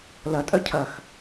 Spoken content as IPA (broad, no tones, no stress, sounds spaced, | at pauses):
l ɐ tʼ œ cʰ ɐ x